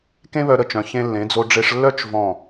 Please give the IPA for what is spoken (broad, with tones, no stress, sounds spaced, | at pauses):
k ẽ˥ β œ˧ ɾ ə˧˩ t͡ʃ œ̃˩˧ ç ẽ˧ lː ẽ˩˧ d͡z o˧ ɖ͡ʐ e˧ ʂ lː œ˥˧ t͡ʃ v ɔ̃˧˩